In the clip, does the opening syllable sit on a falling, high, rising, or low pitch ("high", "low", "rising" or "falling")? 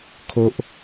high